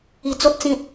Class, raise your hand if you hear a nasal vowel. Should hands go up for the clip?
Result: yes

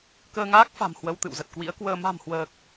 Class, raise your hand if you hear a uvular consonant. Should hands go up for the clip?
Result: no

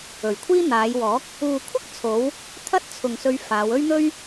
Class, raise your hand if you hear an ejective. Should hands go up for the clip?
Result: no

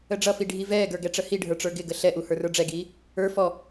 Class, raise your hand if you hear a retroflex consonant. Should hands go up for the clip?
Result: yes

